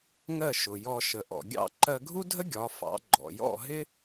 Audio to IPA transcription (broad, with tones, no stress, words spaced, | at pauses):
ŋɜ˥˩ʃʊ˩jɔ˧ ʃə˩ʔɔ̰˩ɡʲɑ̰˥˩ ǃɜ˧ɡʱu˥dʱə˥ ɡʲɒ˩˥fɑ̰˩˥ ɡ͡ǃɔ̰˩jɔ̰˥˩ ɦɪ˥